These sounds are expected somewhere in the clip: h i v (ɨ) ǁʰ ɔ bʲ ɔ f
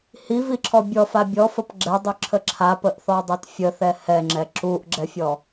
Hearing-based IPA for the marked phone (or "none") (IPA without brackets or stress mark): i